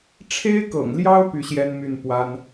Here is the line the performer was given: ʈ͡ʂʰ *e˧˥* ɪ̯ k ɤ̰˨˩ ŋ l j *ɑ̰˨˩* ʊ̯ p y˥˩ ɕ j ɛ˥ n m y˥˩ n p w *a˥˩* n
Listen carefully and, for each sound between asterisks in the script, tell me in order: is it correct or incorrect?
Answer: incorrect: e˥, incorrect: ɑ˥, incorrect: a˥

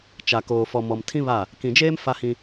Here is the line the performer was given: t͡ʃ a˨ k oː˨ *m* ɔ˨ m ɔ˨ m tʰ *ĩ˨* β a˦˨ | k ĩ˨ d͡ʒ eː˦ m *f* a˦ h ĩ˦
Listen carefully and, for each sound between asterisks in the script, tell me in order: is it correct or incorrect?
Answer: incorrect: f, incorrect: ĩ˦, correct

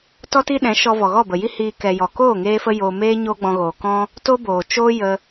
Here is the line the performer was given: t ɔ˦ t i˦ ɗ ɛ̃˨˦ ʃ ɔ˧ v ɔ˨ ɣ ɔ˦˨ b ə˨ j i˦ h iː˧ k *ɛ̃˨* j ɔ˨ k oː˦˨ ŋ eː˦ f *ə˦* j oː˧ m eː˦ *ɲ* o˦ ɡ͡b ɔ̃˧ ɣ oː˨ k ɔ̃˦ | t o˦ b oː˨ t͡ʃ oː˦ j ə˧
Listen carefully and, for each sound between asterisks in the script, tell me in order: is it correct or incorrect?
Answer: incorrect: ɛ˨, correct, correct

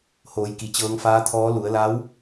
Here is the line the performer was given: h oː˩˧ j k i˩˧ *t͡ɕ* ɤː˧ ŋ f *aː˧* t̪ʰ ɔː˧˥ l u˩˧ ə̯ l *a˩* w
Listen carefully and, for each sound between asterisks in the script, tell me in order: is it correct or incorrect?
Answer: correct, incorrect: aː˧˥, incorrect: a˧˥

